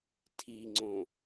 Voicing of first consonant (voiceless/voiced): voiceless